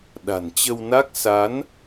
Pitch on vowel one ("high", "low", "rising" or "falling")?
low